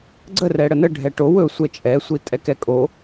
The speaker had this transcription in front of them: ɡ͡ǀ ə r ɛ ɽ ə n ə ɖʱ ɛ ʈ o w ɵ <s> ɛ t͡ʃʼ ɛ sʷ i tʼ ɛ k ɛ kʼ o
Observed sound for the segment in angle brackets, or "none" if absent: sʷ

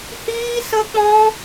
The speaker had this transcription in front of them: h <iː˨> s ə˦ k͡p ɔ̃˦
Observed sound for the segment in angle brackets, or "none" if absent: iː˦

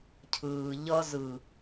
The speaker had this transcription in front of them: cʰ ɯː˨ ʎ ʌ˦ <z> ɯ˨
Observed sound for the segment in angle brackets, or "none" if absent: z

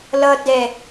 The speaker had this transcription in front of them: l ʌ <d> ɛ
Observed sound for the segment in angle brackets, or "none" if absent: d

